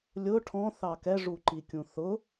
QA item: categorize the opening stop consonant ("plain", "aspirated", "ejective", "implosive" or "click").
aspirated